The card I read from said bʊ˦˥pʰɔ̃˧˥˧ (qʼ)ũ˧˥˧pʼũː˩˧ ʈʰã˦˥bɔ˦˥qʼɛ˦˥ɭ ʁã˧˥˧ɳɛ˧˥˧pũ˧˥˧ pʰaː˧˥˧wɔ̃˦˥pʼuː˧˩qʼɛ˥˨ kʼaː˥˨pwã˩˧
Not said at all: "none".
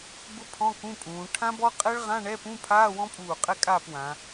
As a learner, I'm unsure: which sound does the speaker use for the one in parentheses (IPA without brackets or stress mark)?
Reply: k